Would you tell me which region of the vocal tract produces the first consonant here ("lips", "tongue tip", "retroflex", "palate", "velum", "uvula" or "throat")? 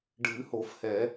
retroflex